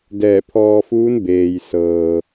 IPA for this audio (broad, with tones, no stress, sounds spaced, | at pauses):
d ɛː˧˩ pʰ ɔː˧ f uː˧˥ n b eː˩ j s ɤː˩